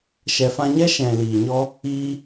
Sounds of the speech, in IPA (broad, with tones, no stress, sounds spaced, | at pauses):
ʃ ɛ˨ f ã˧ ɲ ɛ˦ ʃ ɛ̃˨ l iː˨ ɲ ɔ˦ | iː˧